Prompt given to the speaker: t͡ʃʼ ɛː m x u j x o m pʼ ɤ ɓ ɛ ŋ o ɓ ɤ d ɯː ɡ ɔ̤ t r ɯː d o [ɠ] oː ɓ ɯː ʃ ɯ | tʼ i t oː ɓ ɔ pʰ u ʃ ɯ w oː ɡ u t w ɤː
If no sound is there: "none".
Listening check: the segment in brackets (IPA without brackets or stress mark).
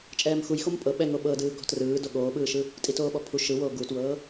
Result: ɠ